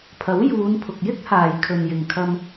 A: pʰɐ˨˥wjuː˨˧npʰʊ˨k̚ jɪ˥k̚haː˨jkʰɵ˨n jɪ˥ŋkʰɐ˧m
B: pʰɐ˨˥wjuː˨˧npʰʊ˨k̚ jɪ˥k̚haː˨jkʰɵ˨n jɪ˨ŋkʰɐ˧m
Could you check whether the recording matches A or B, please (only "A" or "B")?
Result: B